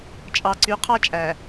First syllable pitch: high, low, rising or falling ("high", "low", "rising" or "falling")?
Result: low